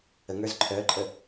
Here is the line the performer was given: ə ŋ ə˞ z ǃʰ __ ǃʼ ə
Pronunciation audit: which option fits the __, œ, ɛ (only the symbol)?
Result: œ